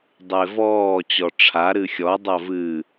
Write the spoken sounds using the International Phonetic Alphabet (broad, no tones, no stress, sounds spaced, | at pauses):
dˤ e v ɔː t͡ɕ ɔ ʈ͡ʂʰ a ɾ ɨ xʲ ɔ dˤ ɐ v ɨ